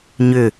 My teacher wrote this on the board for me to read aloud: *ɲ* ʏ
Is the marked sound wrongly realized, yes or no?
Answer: no